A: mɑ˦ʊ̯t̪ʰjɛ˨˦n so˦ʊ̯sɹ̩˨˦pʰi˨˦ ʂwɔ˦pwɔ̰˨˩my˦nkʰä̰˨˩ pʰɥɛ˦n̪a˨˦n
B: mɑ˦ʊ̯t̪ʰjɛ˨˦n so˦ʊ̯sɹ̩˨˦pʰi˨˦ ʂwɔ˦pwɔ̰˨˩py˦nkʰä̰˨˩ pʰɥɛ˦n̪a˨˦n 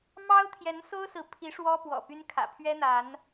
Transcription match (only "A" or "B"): B